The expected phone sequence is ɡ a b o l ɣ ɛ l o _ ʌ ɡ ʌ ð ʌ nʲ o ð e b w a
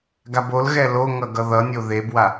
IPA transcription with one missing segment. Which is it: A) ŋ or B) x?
A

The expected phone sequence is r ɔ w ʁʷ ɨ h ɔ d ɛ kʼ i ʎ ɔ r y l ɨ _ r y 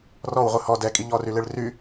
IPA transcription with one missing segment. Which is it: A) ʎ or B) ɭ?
B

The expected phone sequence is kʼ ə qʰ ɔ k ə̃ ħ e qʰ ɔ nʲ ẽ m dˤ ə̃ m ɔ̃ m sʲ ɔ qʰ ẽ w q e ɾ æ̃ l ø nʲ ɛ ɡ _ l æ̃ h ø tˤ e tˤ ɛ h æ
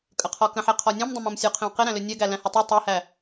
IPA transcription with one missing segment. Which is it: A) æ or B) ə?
A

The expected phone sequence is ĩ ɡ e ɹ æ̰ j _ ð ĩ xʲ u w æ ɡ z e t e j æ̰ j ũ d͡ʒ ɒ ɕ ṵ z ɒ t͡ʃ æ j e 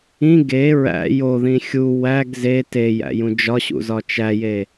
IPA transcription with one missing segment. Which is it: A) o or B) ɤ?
A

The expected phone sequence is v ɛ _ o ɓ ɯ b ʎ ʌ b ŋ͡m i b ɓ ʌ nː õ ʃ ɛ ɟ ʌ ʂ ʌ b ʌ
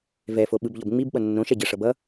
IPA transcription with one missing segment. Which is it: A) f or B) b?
A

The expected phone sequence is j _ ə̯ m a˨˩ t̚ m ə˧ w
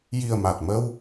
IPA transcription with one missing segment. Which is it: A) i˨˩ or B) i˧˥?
A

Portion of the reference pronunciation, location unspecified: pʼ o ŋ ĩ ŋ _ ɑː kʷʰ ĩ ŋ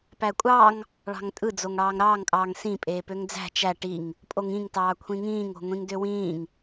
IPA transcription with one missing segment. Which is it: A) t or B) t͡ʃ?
A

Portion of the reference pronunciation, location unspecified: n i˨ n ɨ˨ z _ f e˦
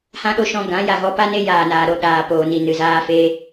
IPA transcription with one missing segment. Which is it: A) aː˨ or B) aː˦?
B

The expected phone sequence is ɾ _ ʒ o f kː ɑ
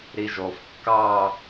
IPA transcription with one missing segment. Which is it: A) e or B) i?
B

